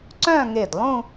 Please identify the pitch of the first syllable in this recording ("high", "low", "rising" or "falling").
falling